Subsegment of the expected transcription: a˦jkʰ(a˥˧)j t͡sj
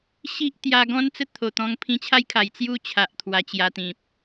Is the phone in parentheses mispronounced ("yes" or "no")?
yes